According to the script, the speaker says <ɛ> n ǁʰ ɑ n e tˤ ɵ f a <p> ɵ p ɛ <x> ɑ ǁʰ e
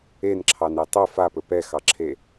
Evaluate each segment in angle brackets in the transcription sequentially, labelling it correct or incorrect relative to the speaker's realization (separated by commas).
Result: incorrect, correct, correct